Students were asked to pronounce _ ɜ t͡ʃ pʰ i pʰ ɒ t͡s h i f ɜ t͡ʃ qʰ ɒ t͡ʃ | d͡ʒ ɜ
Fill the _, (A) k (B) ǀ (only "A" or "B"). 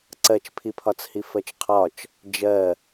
B